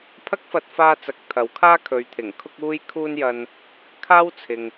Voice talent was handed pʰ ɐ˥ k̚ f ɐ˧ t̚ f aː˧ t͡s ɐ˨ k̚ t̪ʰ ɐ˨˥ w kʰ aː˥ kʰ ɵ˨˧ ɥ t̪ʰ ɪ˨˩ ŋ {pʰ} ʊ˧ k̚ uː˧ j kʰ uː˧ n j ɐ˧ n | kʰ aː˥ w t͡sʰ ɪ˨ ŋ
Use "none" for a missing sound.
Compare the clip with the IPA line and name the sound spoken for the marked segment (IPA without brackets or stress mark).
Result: kʰ